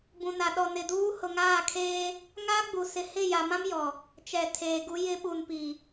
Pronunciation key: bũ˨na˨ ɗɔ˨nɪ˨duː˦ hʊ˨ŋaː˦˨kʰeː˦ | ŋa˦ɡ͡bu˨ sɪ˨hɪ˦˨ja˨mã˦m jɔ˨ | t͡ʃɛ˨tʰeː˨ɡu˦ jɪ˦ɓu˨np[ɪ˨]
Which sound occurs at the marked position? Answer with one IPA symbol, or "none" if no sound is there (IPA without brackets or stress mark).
i˨